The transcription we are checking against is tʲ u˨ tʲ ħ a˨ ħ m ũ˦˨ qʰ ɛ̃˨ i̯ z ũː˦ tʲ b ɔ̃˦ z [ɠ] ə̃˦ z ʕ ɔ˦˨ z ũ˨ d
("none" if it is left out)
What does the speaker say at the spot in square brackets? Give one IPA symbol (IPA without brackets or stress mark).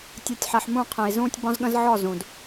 ɠ